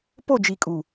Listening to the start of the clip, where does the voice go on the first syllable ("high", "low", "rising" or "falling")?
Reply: falling